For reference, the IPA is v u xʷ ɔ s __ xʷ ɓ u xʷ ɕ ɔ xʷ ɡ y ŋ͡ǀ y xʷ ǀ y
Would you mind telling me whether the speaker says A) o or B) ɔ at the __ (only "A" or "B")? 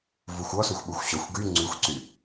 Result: A